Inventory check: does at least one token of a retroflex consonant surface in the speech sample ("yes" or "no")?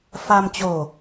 no